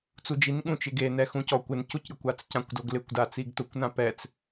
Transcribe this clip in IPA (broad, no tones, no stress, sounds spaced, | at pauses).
t͡s u d͡ʒ i n ɠ ũ t͡ʃ ɪ ɡ e n ɛ x ũ c ɔ kʷ ɪ n c u c ɾʲ ʊ kʷ a t͡s c ã kʷ d o ɡ l ɪ kʷ d a t͡s i ɡ t ʊ kʷ n ã p ɛ t͡s